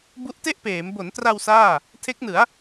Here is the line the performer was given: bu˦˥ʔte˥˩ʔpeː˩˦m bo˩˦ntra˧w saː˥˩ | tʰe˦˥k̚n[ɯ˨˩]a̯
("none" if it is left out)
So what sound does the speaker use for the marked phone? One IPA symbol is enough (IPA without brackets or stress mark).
ɯ˩˦